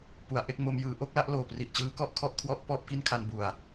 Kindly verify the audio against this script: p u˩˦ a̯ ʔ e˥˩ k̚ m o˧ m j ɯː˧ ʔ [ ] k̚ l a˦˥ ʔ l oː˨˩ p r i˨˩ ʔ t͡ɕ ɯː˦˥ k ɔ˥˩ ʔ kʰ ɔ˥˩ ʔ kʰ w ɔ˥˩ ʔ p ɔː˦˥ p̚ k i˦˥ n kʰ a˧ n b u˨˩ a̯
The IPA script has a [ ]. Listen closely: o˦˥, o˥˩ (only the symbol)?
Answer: o˦˥